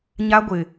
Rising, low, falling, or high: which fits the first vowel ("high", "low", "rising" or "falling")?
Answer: high